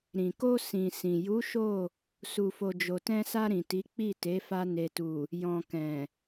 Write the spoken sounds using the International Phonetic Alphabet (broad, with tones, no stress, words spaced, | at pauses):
ɾĩ˨ko˧ sĩ˨ sĩ˨ ju˨˦ ʃo˦˨ | su˧fo˧ d͡ʒo˨tɛ̃˧sa˧ ɾĩ˨ti˨˦ k͡pi˦˨te˨˦ fa˧ ne˨tu˨ | jɔ̃˨ kɛ̃˨